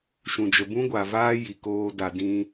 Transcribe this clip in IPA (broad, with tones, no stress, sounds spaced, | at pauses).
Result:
ʃ ũ˨ d͡ʒ ə˨ b ũ˦ ɡʷ a˨ v aː˦ j i˨ k oː˧ d a˨ d ĩ˧